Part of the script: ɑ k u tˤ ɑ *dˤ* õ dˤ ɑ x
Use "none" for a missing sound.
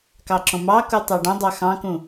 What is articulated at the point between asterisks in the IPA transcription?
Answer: ɖ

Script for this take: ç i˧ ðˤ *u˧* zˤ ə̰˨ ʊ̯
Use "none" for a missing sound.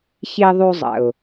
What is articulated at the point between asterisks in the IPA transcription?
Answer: u˧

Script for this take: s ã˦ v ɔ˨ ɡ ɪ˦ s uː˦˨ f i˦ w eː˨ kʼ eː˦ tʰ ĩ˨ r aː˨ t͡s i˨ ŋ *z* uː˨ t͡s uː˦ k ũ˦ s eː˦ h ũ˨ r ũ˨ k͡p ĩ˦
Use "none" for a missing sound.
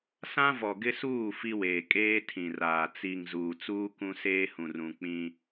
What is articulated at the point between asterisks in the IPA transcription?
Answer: z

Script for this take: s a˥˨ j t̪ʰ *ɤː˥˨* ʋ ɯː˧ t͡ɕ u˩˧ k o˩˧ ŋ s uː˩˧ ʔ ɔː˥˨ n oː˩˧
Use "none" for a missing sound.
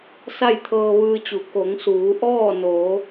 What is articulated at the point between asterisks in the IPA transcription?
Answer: ɤː˧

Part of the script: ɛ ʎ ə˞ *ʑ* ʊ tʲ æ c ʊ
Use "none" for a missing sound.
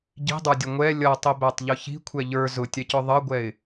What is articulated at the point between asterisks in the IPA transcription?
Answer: z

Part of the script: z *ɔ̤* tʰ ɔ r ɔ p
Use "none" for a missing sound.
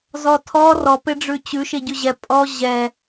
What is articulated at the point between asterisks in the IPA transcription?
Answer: ɔ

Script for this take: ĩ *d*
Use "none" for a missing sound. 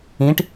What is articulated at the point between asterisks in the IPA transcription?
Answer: ʈ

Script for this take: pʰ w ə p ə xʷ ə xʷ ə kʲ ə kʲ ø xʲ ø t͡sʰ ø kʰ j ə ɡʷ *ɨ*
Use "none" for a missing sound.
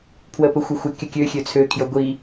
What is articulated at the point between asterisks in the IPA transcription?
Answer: i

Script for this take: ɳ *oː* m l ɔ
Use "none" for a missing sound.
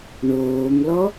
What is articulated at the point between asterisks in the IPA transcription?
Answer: oː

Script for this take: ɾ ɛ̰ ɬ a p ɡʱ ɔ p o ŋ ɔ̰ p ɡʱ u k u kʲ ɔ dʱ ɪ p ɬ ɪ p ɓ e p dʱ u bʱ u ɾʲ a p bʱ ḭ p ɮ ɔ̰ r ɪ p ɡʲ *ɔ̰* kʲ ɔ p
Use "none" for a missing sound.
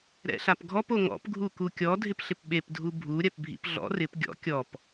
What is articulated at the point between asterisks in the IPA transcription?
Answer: ɔ̰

